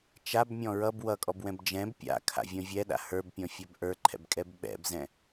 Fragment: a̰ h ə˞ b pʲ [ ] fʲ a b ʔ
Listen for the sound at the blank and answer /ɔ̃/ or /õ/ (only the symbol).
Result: ɔ̃